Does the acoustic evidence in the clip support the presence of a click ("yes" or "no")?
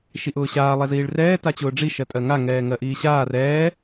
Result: no